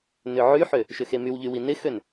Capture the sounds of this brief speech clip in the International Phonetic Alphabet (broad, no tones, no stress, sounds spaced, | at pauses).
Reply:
n ʏ ʕ y ħ ø | ʃ ʏ x e m y w ʎ y w i n ɪ x ø n